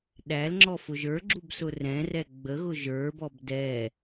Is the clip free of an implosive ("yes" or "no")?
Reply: no